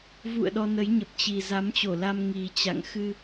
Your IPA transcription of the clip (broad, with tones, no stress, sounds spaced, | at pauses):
v ṵ˧˨ ə̯ ɗ ɔ˧ n ə˨˦ j ɲ ə˨˩ p̚ t͡ɕ i˨˩ z a˨˦ m t͡ɕ o˧˩ l a˧ m ŋ i˨˩ t͡ɕ a̰˧˨ ŋ x ɨ˧